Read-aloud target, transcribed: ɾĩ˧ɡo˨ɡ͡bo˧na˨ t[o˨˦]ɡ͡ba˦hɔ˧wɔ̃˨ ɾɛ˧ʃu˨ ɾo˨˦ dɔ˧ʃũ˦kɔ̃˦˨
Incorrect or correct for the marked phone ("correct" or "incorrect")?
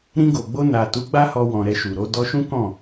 incorrect